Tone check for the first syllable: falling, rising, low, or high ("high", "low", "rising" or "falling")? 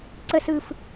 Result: falling